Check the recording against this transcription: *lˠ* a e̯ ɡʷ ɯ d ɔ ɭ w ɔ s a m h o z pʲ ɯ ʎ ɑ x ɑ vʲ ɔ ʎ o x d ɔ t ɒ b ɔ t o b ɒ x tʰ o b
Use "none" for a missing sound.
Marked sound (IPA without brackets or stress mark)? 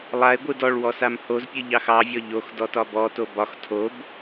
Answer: lˠ